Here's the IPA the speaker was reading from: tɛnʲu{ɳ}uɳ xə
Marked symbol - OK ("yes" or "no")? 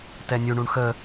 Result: yes